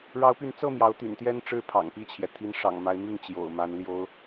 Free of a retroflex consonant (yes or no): no